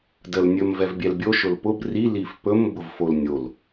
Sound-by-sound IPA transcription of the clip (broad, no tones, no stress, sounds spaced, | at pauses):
d ə l nʲ ɵ m v ɛ v bʲ ɛ l bʲ o ʃ ʊ l p ʊ b r i l i f p ɵ m b ʊ v f o l nʲ o l